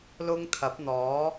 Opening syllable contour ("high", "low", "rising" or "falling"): high